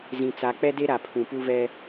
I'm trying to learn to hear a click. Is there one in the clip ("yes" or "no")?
no